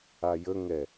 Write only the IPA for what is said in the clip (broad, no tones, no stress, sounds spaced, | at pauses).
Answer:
a j ə ŋ ɛ